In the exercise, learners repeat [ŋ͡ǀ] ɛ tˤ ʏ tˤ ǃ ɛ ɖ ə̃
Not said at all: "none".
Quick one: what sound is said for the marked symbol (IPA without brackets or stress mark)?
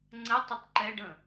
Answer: ŋ͡ǀ